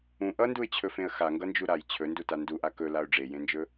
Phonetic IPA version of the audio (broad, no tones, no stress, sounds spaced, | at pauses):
ũ ʔ ʌ n d u ɪ̯ t͡ɕʰ ɵ f ẽ ə̯ x a ŋ ɡ ʌ n d͡ʒ u ɾ a j t͡ɕʰ ɵ n d u t a n d u ʔ a k ɵ l a ʊ̯ ɖ͡ʐ e j ẽ n d͡ʒ ɵ